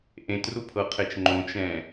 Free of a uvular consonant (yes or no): no